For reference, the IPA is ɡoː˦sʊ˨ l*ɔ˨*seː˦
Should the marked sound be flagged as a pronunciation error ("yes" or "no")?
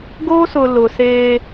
yes